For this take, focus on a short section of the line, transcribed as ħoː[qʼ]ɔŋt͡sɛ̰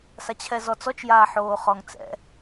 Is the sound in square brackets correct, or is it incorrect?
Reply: incorrect